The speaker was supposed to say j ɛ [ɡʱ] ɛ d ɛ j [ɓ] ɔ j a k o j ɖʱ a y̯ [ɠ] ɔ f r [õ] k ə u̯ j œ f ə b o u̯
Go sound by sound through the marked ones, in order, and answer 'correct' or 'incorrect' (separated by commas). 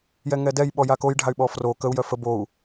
incorrect, correct, incorrect, incorrect